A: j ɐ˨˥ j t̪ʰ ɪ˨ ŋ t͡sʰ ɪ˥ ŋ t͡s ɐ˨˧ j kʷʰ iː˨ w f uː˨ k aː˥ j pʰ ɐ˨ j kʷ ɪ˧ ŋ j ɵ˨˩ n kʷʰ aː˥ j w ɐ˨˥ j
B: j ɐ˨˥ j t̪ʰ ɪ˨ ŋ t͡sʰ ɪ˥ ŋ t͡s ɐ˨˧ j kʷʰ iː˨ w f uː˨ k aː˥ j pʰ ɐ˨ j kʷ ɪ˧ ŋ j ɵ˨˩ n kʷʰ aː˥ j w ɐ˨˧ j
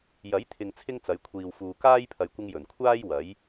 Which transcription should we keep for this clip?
A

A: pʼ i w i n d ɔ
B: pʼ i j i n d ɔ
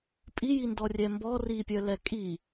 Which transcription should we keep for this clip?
B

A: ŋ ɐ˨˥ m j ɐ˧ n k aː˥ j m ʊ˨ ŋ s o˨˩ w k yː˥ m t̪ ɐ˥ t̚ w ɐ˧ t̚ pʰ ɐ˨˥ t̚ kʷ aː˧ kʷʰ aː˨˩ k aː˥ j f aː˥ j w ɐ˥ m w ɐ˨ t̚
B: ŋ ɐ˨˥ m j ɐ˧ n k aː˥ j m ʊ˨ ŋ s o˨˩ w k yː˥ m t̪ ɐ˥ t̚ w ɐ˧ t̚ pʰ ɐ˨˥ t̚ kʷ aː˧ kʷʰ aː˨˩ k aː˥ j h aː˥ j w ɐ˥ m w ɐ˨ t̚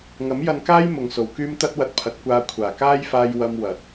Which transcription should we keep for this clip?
A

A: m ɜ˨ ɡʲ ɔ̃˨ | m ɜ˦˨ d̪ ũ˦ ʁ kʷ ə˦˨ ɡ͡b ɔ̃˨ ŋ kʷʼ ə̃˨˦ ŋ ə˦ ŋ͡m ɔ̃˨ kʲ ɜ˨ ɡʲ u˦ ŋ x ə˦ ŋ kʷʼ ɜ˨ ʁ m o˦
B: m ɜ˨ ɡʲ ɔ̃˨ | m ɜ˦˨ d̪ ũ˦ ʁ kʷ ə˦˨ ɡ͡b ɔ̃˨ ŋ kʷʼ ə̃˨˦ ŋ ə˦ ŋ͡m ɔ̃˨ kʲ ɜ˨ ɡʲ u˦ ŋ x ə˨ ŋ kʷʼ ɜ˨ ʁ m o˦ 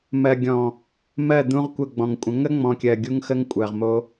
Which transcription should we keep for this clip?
A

